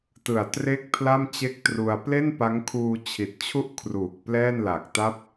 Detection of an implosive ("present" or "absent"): absent